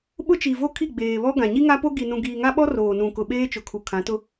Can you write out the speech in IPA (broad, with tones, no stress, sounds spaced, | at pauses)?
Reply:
ɓ ʊ˦ t͡ʃ i˨ v o˦ kʰ i˦˨ ɡ͡b eː˨ β ɔ˦ ɡ ã˨ ɲ i˦ ŋ a˦ p o˦ ɡ i˨ n ũ˨ ɡ iː˨ ŋ a˦ ɓ ɔ˦ r oː˨ n ũ˨ k ʊ˨ ɓ eː˦ t͡ʃ ʊ˨ kʰ u˨ kʰ ã˨˦ t ʊ˦